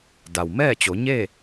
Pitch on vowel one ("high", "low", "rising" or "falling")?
low